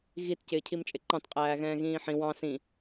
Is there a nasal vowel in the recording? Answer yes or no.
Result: yes